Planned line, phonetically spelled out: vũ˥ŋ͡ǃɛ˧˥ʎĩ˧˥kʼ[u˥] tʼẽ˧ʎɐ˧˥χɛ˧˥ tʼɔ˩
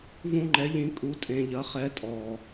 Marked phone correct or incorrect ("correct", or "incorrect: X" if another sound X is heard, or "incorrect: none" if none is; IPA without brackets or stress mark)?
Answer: incorrect: u˧˥